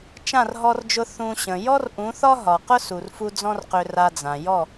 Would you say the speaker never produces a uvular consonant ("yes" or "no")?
no